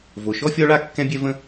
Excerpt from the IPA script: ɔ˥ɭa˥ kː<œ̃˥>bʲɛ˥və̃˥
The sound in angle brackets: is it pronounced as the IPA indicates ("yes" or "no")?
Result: no